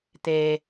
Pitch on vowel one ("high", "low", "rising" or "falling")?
low